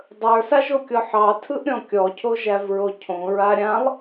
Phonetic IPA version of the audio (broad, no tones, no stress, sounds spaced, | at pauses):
dˤ ə˞ s a ʒ o kʲ ɔ ħ ɑ tʰ ɯ ʔ ɾʲ ɔ̃ kʲ ɔ cʰ o ʒ æ v ɹ o cʰ õ ɹ a ɾʲ ã lˠ